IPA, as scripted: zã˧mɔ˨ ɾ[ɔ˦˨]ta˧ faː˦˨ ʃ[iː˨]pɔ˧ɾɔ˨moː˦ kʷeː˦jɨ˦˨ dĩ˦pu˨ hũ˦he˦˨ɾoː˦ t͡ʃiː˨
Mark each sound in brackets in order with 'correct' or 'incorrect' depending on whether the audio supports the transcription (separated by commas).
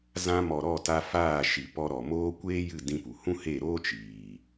correct, incorrect